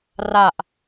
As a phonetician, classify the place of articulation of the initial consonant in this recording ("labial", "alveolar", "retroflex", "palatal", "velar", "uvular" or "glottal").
alveolar